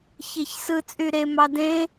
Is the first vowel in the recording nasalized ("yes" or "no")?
no